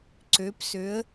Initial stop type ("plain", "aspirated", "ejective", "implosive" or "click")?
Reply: click